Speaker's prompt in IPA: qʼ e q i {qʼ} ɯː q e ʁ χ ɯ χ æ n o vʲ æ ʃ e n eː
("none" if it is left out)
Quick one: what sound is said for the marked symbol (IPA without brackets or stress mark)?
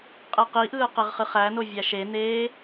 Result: ʔ